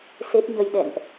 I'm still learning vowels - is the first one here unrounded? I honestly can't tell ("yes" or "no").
yes